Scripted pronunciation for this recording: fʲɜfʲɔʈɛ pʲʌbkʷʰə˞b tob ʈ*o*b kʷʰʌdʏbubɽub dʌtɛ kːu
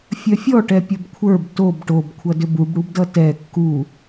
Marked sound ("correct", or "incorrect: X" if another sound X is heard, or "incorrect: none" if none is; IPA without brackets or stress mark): correct